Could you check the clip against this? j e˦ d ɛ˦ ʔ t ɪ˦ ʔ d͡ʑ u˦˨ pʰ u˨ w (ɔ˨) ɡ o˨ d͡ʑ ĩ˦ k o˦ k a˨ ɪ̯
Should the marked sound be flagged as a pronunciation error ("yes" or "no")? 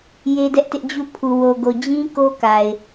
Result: yes